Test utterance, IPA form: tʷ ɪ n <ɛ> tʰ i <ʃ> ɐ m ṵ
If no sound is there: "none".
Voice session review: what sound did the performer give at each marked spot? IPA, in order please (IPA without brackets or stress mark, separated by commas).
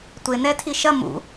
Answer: ɛ, ʃ